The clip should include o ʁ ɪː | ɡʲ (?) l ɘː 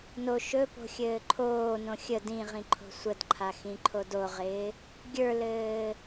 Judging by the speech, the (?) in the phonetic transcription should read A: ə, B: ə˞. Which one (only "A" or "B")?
B